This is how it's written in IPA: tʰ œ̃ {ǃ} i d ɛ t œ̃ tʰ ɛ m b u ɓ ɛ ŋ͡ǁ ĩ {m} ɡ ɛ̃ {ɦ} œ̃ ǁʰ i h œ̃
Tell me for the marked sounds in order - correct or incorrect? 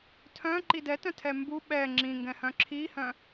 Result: correct, incorrect: ŋ, incorrect: h

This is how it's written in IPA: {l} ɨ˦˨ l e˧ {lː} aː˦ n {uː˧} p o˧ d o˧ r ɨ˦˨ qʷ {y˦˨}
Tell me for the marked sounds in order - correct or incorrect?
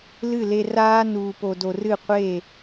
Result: correct, incorrect: r, correct, incorrect: e˦˨

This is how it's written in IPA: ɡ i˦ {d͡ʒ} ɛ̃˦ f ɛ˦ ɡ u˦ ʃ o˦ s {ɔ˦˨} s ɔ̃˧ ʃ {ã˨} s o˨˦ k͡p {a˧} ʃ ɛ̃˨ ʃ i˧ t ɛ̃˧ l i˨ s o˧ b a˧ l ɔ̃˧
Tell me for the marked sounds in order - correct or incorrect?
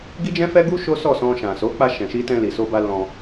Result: correct, correct, correct, correct

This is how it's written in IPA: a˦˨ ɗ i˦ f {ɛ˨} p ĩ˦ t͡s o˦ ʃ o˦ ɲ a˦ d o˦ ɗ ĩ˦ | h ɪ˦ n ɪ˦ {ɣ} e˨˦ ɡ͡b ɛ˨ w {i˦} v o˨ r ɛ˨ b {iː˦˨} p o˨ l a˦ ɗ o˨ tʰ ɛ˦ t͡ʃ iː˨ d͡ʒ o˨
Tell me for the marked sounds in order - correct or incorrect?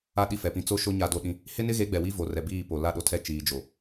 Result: correct, correct, correct, correct

